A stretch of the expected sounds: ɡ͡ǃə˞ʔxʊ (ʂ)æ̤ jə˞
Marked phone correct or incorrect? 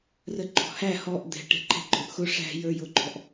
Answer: correct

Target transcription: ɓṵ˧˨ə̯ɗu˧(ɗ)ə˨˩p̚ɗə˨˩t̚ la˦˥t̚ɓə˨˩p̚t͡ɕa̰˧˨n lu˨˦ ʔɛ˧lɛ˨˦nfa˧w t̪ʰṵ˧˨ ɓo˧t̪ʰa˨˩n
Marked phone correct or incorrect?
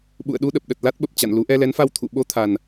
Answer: correct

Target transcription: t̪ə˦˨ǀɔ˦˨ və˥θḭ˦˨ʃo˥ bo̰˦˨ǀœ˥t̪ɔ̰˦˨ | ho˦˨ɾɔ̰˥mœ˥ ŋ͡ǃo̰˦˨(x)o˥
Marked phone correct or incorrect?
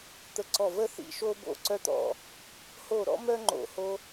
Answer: incorrect: h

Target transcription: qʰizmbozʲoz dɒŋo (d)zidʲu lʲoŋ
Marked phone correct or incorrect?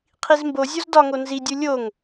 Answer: incorrect: n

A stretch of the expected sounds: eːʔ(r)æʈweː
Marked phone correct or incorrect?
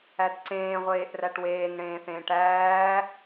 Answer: correct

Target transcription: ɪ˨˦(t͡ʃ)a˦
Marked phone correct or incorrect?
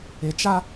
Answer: correct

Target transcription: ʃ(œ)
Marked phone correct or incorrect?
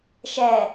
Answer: incorrect: ɛ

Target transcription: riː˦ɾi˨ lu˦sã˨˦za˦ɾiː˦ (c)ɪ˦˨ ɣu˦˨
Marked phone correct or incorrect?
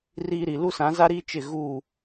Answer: incorrect: t͡ʃ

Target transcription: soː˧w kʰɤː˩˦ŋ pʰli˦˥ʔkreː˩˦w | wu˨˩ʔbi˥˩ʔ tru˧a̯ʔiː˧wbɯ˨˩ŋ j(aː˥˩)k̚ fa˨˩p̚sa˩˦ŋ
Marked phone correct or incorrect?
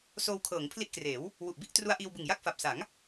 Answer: incorrect: a˥˩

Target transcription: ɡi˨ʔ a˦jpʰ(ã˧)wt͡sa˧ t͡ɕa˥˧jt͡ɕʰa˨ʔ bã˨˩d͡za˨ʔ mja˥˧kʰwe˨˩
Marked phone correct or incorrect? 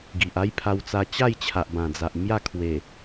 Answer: incorrect: a˧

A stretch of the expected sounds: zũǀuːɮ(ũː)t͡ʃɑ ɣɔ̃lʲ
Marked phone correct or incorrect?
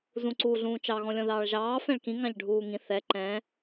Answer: correct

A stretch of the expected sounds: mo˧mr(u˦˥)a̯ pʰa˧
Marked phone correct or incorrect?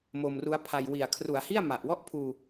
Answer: correct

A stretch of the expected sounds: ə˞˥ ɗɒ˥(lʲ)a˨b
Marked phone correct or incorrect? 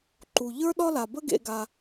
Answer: incorrect: l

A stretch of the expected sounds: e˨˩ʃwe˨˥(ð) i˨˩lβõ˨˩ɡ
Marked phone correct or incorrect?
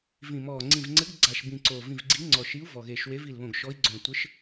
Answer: incorrect: v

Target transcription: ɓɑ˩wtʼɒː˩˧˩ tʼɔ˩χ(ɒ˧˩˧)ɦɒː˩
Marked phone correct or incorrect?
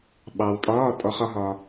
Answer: correct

